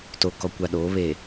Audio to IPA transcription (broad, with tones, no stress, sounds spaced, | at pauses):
t o˨ k ɔ˨ kʷ a˨ ɗ oː˨˦ β e˨